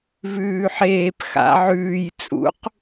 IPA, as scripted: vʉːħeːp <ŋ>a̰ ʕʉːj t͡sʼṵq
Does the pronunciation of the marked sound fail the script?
yes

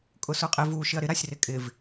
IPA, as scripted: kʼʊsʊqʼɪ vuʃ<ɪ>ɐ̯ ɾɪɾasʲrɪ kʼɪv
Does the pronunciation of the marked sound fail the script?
no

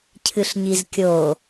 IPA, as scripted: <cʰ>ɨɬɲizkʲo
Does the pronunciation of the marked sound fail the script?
no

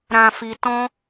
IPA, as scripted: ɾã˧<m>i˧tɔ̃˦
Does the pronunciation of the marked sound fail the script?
yes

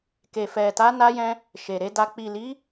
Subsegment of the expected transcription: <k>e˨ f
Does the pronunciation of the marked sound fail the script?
no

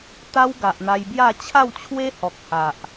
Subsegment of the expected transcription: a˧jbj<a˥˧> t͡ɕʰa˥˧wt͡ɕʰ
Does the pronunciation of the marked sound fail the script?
no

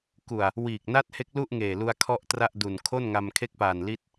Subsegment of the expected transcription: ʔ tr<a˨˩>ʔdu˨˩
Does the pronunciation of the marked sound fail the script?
yes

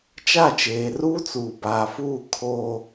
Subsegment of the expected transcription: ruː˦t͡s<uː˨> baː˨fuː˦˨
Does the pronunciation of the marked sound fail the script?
no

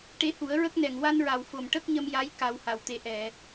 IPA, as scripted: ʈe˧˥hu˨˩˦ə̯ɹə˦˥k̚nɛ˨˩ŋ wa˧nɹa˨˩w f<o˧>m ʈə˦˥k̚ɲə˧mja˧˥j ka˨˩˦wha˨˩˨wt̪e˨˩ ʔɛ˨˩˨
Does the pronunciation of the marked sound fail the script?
yes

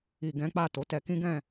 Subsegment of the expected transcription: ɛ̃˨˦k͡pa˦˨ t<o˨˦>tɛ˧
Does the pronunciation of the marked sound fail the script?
no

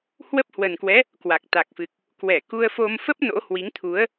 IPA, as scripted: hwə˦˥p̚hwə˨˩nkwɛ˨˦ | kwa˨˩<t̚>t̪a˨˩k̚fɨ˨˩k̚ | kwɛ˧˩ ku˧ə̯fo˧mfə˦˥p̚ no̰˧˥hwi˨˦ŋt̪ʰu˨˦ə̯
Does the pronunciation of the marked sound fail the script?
yes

